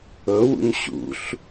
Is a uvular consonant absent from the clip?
yes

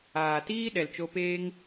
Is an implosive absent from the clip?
no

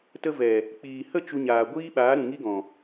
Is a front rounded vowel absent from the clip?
yes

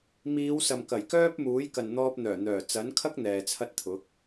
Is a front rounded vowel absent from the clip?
no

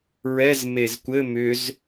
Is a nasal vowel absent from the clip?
yes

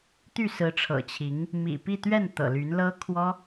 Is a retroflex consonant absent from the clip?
no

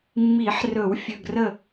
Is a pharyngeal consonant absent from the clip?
no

